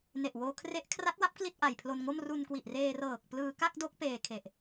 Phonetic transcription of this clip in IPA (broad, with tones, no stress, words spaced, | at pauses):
ne˨˩ʔwoː˧ kʰre˦˥ʔkʰra˦˥t̚wa˦˥p̚ kli˥˩t̚ʔa˨˩jpʰlo˧nŋo˥˩m ru˧nkwi˨˩ʔreː˧ rɤː˨˩k̚ plɯː˧ka˥˩k̚do˦˥k̚ peː˧kʰe˨˩ʔ